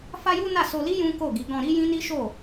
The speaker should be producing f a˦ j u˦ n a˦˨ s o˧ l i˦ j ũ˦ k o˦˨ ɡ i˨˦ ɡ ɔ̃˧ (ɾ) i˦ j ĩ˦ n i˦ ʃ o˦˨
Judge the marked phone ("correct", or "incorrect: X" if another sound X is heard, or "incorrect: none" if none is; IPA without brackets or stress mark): correct